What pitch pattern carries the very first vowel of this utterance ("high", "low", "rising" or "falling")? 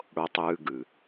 low